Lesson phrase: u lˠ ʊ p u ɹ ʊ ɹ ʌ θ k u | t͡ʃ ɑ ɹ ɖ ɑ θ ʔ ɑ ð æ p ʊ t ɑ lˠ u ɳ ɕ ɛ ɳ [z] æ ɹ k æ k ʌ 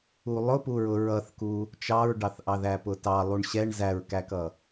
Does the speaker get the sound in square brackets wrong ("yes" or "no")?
no